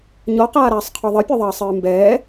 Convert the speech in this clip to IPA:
ɲɔqaːɾaːsˤqʰɔ ðˤɘpʲɔðˤɐːsˤɨː mbɛː

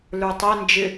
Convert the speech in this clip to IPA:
lə˞tˤɛ nd͡ʒɪ

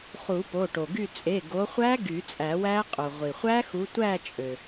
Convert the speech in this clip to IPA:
χu˨˩˦po˩˧˩ʈo˩ɡy˦˨ t͡sʼe˩˧˩ɡo˨˦χʷæ˦˥ ɡy˨˩˦t͡sʼæ˨˩˦wæ˦˥qʼo˩ ʁʷi˩χʷæ˦˥xu˨˦ tʷæ˦˨ t͡ʃʼø˩

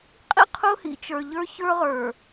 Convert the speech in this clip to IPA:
qʼḭ˦qʰʊː˦hḭ˨ t͡ʃə˞˨ʎə˞˦ çə˞˦ʁə˞˨

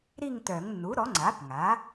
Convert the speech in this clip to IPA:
ɾi˥˧ŋtœ˨˩˦ŋ nːu˩˥ɾɔ˩˥ŋ͡ǀa˩˥p ŋa˩˥

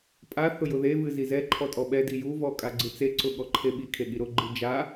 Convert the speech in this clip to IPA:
pʼa θʊjʊðevɨ zizɛǃʰɔ tʼɔɓɛdi juvɔ kʼaɡ͡ǀɨt͡seǀʊ ɠɔǃʰeɓikʰe ɠiɾʊɡ͡ǃɨ d͡ʒa

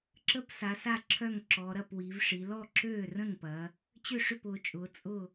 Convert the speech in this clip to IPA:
ǁə˥˩psa˩˧sa˥˩ ǁʰœ˥˩ŋǁɔ˩˧ ɾɐ˥˩pwi˩˧vʂi˩˧ lɔ˥˩ǁøː˥˩rə̃˥˩ŋpɐ˩˧ | t͡ɕʏ˥˩ʂʏ˥˩pʊː˩˧t͡ʃʼʊː˩˧ t͡sʼʊ˥˩

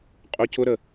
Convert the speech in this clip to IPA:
qʼʊ cʊɾə

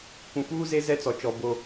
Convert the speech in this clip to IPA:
kʷũ˨fuː˦ze˦ zɛ˦t͡sɔ˨t͡ʃɔ˨ bo˦

